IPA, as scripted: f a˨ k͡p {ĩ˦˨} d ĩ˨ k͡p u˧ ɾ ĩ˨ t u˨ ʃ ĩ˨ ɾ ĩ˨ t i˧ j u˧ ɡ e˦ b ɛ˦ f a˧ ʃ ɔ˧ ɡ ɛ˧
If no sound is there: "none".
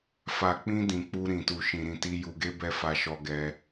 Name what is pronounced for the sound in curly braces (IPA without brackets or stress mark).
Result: ĩ˧